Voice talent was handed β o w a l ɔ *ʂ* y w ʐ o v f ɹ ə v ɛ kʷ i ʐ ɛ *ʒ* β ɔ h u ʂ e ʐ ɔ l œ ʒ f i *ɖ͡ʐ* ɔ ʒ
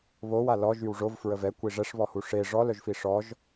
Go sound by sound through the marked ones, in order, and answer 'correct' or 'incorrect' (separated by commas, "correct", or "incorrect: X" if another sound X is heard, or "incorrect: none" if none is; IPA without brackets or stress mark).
incorrect: ʒ, incorrect: ʂ, incorrect: ʂ